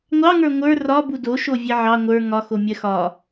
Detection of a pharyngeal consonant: present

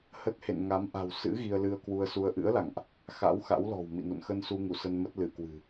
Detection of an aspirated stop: absent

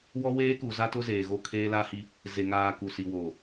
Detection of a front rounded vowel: absent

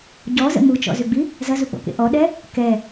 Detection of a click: absent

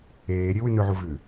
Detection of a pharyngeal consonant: present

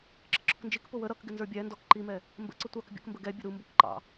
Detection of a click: present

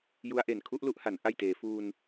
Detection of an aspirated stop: present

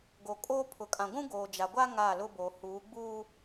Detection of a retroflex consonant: absent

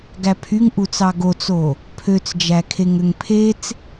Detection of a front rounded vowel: present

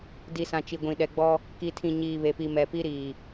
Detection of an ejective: absent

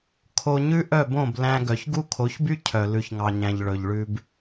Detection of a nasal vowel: present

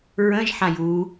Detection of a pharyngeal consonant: present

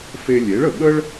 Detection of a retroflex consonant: present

